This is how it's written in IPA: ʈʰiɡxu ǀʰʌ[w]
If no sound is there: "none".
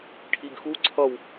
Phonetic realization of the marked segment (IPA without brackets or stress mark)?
w